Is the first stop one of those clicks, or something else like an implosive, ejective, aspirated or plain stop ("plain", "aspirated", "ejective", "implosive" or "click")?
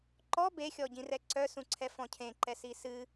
click